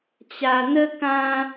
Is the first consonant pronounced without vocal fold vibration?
yes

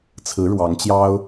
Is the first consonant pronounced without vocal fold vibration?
yes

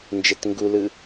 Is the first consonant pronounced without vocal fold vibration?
no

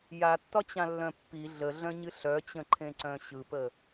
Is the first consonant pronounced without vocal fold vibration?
no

